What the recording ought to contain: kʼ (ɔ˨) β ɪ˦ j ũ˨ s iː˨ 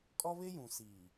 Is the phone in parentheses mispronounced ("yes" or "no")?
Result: yes